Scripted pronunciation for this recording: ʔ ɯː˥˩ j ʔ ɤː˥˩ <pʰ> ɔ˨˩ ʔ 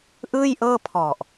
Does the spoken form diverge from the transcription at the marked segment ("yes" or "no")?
no